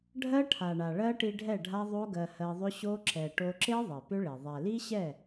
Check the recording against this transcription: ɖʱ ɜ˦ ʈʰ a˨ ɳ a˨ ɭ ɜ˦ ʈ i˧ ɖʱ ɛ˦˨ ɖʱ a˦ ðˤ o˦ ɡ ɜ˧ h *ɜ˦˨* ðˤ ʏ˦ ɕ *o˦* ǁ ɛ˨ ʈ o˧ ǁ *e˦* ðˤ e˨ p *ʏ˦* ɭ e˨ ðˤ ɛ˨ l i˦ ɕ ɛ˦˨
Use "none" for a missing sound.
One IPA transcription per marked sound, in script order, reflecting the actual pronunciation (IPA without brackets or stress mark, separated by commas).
ɜ˧, o˦, e˦, ʏ˦